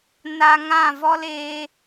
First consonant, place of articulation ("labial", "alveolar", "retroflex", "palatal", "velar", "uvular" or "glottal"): alveolar